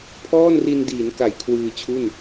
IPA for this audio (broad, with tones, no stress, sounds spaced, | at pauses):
pʰ ɔː˥˩ n r i˧ n d iː˩˦ n k a˩˦ j kʰ w ɯː˧ t͡ɕʰ u˥˩ n